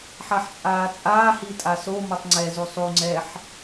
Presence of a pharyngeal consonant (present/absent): present